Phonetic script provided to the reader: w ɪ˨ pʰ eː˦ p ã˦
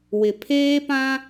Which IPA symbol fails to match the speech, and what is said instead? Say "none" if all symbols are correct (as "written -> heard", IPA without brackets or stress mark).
none